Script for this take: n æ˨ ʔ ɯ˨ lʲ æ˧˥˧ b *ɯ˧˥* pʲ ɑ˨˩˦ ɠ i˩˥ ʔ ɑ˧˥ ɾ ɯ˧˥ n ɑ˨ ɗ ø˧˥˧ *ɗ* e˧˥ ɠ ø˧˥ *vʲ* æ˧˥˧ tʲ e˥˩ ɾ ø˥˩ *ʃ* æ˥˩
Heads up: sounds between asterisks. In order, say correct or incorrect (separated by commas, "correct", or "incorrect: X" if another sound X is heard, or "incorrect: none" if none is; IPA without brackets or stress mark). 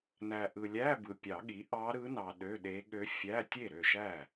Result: incorrect: ɯ˨, correct, incorrect: fʲ, correct